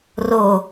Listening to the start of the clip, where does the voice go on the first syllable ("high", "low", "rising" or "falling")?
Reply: falling